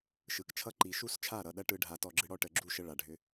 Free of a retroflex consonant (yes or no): no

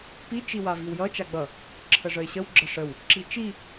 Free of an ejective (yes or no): yes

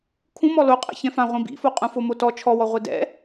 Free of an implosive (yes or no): yes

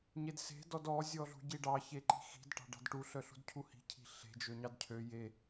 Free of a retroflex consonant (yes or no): no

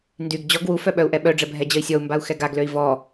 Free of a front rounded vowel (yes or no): no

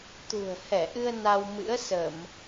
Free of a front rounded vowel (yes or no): yes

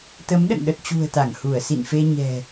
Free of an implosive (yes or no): no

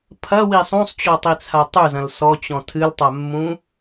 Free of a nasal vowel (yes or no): no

